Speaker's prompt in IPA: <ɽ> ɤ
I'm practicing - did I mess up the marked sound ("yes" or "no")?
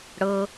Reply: no